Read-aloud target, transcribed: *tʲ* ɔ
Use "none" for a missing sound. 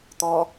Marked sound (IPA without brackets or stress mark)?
t̪